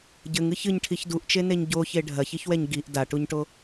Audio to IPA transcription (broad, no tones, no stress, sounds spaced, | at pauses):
ɟ ɘ ŋ ɨ ç ɨ ɲ ʈʰ i ç d u ʔ t͡ʃ e n e ɲ ɟ o ç e ɖʱ ɐ ç i ç w ɛ ɲ ɡ i ʔ d a ʈ u ɲ ʈ o